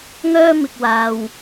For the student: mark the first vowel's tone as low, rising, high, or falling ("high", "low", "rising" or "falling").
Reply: high